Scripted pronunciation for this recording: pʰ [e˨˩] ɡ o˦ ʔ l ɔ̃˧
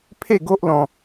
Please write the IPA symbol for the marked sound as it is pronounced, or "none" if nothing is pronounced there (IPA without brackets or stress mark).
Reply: e˥˧